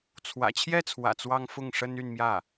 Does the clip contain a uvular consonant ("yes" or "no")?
no